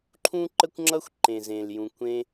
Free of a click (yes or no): no